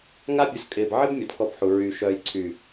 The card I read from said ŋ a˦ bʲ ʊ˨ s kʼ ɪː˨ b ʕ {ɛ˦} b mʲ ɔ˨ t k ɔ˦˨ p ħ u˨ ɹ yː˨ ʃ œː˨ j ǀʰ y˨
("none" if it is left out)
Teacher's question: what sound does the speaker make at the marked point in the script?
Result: ɪ˦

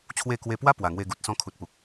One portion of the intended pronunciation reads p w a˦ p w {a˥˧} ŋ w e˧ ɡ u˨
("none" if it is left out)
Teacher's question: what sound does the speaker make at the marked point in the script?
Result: a˨˩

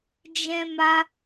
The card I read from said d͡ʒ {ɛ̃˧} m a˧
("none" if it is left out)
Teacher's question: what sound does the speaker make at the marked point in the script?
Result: ɛ̃˧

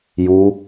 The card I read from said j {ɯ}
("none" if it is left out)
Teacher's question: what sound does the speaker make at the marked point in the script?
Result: u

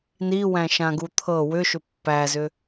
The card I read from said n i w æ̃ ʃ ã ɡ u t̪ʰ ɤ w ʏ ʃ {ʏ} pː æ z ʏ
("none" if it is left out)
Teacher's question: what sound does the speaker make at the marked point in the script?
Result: ʏ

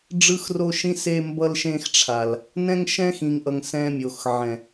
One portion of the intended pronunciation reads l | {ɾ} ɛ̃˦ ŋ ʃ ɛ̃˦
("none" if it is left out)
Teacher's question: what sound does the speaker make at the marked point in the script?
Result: n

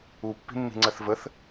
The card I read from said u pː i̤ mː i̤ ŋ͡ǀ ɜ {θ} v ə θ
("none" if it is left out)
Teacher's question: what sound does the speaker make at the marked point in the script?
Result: θ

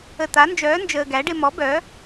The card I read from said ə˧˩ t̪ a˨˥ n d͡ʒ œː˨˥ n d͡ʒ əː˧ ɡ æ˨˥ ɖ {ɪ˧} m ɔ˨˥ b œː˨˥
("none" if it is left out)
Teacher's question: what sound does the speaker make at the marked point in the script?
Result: ɪ˧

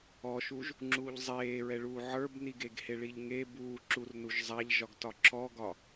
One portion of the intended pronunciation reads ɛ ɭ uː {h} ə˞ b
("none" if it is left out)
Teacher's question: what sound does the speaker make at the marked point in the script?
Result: ʕ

